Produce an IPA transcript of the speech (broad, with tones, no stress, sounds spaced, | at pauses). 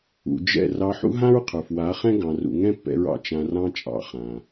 ṵ˨ d͡ʒ ɛ̰˦˨ r ɑ˧ ħ ṵ˦ ɦ ã˦ ɹ qʰ ə˞˨ f w a˨˦ χ ɛ̃˦ ɡ ɑ̃˧ r ṵ˧ ŋ ɛ̃˦ pː ɛ̰˧ ɹ ɑ̰˨ t͡ʃ ã˧ r ɑ̃˦ t͡ʃʼ ɑ̰˨˦ χ ã˨